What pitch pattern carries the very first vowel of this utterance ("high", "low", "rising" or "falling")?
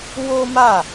high